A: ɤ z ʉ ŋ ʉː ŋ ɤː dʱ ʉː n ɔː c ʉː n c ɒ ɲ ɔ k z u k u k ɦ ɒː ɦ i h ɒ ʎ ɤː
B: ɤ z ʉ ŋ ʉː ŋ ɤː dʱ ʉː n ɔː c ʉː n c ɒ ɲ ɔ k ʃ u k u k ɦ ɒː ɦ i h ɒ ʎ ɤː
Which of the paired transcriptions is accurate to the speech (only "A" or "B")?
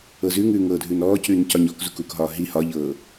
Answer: A